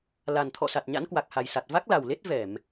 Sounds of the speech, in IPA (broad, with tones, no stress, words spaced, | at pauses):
la˨˩n t̪ʰɔ̰˧˨sa˨˩t̚ ɲa̰˧˥nkwa˨˩k̚ha˨˩jsa˨˩t̚ va˦˥k̚la˨˩wle˦˥t̚ vɛ˧˩˨m